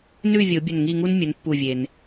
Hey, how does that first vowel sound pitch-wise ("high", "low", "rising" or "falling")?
falling